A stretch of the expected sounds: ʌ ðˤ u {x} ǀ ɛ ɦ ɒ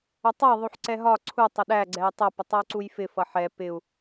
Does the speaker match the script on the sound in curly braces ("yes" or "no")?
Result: no